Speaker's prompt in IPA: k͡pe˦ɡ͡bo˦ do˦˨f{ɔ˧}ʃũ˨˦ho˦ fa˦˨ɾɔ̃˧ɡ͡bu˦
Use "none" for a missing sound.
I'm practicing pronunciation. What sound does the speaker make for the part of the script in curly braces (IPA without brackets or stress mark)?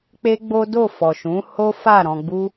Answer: ɔ˨